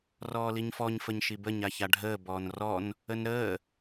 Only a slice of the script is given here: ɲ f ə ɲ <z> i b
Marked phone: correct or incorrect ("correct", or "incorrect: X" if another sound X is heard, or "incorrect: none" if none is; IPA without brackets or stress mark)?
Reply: incorrect: ʃ